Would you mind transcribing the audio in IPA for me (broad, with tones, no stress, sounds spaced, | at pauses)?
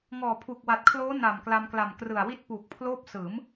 ŋ ɔː˨˩ pʰ u˨˩ k̚ w a˨˩ t̚ kʰ l oː˦˥ n a˨˩ m k l a˧ m k l a˨˩ m k r ɯ˨˩ a̯ w i˥˩ t̚ p uː˨˩ k̚ pʰ l oː˥˩ p̚ s ɯː˩˦ m